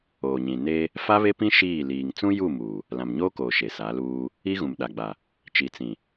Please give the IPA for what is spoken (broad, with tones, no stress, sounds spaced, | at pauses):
oː˨ ɲ ĩ˨ n e˦ | f a˦ β e˦ p ĩ˦ ʃ iː˦˨ l iː˨ ŋ t͡s ũ˦ j u˦˨ m uː˨ | l ã˨ m ɲ oː˦ k oː˨ ʃ e˨ s a˨˦ l uː˦ | i˦ ɣ ũ˨ m ɗ a˨ ɡ͡b a˨ | t͡ʃ i˨ t͡s ĩ˨